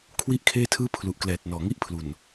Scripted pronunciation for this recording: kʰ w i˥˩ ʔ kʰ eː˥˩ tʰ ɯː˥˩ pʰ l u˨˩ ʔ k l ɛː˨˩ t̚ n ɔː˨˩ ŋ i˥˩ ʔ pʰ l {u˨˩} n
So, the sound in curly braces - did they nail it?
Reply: yes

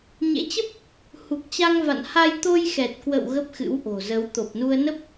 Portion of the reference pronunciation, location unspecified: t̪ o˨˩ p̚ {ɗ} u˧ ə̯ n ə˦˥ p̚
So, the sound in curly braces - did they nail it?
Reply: no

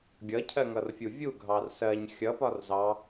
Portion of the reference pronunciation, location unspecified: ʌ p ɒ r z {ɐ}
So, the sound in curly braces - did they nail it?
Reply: no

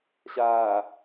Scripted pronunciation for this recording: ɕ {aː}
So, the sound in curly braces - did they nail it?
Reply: yes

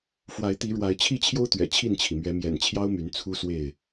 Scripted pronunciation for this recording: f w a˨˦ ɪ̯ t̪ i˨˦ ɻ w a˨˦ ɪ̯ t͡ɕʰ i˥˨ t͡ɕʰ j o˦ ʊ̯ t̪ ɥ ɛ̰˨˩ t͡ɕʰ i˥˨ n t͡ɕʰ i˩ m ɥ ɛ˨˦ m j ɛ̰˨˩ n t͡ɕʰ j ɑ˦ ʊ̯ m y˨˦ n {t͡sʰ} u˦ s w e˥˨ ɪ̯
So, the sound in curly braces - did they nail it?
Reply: yes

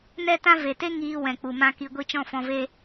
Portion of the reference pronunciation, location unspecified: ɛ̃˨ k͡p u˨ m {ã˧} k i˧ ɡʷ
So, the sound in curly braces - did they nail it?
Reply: yes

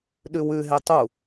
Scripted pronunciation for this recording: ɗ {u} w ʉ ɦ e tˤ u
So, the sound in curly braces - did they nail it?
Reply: no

